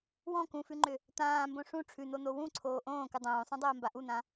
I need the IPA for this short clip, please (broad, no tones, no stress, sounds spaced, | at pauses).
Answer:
w ɔ̃ k ũ f ʉ ŋ͡ǃ ʏ | t̪ ãː m b õ ʂ ũ ʈ͡ʂʰ ʉ n̪ o n̪ o w ũ ǀʰ oː ʔ õː k ɨ dˤ õː sˤ õ dˤ oː m b a ʔ u n̪ ã